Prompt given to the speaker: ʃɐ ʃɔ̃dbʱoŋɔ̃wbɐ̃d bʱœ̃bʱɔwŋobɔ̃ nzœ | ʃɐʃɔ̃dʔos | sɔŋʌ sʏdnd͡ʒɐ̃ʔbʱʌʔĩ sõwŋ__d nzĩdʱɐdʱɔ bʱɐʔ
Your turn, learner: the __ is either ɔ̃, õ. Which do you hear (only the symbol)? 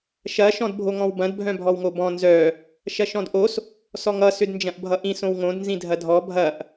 õ